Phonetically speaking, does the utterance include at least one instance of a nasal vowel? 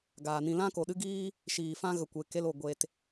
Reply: yes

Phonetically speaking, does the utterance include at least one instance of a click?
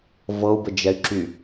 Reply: yes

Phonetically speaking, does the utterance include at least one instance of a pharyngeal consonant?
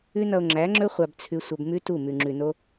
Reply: no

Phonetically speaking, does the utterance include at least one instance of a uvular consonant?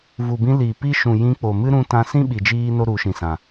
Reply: no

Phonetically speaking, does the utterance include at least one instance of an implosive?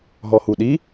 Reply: yes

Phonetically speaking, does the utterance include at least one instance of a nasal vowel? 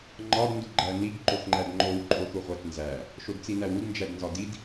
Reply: no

